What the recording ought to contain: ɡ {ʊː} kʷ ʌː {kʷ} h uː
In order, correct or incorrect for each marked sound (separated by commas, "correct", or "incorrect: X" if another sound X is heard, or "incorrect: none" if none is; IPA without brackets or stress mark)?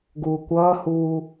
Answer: incorrect: uː, incorrect: none